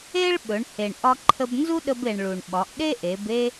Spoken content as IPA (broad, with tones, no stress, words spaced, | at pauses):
e˥ɭɓɵ˩˧ɳ he˩ɳ ʔɒ˧ǃʰə˧b nzu˥ɗə˧be˩ɳ ɭu˩ɳɓɒ˩˧ʔɗe˥ʔe˩˧b e˥